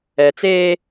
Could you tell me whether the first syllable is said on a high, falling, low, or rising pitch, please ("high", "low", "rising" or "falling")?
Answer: low